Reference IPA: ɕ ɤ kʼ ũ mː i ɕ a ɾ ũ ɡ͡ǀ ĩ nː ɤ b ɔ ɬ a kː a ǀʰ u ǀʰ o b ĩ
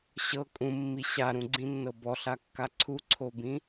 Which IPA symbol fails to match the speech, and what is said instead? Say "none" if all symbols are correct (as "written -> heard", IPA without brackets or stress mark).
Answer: none